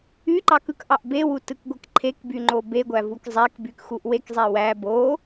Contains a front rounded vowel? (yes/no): yes